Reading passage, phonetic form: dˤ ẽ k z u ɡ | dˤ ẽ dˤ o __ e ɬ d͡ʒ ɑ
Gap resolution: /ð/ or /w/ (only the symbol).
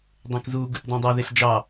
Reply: ð